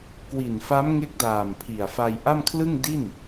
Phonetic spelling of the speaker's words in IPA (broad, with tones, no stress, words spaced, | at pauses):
kwi˨˩nfa˦˥m ŋe˦˥k̚daː˨˩mpʰi˨˩a̯fa˧j ʔa˥˩mkʰlɯ˥˩ŋ di˥˩n